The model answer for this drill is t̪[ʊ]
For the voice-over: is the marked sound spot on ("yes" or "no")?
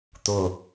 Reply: yes